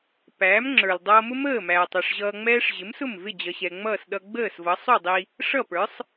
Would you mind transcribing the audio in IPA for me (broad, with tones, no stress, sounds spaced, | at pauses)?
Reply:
p æː˩˥ m ŋ͡ǁ ə˞˩ l dˤ ʌː˧ m ʊ˥ m əː˥˩ m æː˩ tˤ ʌ˥˩ ʂ ʑ ʌː˧ ŋ͡m ɛː˥ ʂ ʑ ɪ˩˥ m s ʊ˥˩ m v ɪ˥˩ d͡ʑ ʌ˩ ɕ ɛ˩ ŋ͡m ʌː˥˩ s ɗ ʌ˧ ɡ͡b əː˥˩ s v ʌ˩˥ sˤ u˥˩ dˤ i˧ | ʂ ʌ˥˩ p ə˞˩˥ sˤ